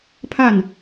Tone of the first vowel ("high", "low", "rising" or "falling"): falling